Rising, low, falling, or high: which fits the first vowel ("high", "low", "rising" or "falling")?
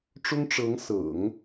high